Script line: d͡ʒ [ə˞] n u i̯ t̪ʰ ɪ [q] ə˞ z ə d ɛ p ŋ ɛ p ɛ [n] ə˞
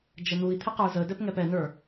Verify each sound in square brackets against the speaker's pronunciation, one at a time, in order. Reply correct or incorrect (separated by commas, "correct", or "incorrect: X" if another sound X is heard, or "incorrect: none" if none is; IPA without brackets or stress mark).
incorrect: ə, correct, correct